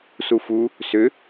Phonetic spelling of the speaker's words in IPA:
s u f u | s ʏ

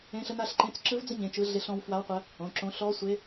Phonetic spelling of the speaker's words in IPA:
ẽ˦˥ ɬ ə˦˥ n a˦˥ ɬ ǃ ẽ˧˥˧ t͡s ǁ ɯ˦˥ v d͡z ə˦˥ ɲ ẽ˧˥˧ t͡ʃ ɯ˦˥ ɮ e˦˥ ɬ ɔ̃˦˥ w f w a˦˥ w qʷ ə˦˥ | õ˧˥˧ ǁ õ˦˥ ɬ ɔ˦˥ sʷ e˦˥

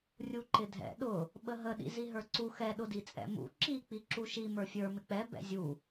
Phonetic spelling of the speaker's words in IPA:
rʲ u ǃ ɪ dʱ ɛ̰ ɗ ʊ | ɓ ə ɦ ə ɗ ḭ z i ɦ ə˞ ǀ u x ɛ ɗ ʊ d i t͡sʼ ɛ̰ m ṵ ǁ i k͡p i ǁ u ʃ i m ə˞ fʲ ə˞ m ɪ k͡p ɛ b ɛ̰ zʲ u

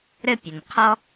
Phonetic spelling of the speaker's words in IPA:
ɾ ɘ˥ pʲ ɘ˩ n qʰ ɔ˥

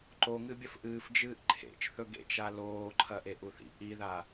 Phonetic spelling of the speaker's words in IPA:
ǃ o ŋ ɨ bʲ ɐ f ʔ ɨː f d͡ʒ ɨː ʔ ǃʰ ḛ t͡ʃ θ ɵ ɡ ḛ t͡ʃ a l oː ǃʰ ɐ ʔ e ʔ u θ ḭ ʔ i ð a

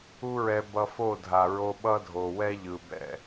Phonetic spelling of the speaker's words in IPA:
u˦ ɹ ɛ˧ b ʌ˧ f o˦˨ dʱ a˨ ɹ o˧ ɓ ʌ˦ dʱ o˨ w ɛ˦ ʎ ɯ˨ b ɛ̰˦˨

